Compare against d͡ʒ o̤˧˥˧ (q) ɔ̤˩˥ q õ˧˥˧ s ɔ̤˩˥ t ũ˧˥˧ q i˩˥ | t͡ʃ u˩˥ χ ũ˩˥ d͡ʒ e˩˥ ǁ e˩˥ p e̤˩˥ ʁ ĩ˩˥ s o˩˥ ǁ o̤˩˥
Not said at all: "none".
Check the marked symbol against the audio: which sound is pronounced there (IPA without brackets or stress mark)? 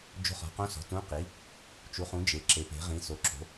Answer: χ